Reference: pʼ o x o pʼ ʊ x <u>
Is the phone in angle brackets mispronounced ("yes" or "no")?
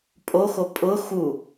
no